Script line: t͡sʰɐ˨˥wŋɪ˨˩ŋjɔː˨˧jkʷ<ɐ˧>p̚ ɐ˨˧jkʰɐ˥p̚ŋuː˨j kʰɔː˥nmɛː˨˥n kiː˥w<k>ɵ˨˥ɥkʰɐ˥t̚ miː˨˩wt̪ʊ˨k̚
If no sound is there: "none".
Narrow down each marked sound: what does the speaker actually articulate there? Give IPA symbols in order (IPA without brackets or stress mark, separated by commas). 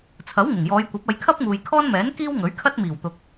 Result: ɐ˨˥, ŋ